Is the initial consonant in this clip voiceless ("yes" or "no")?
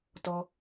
yes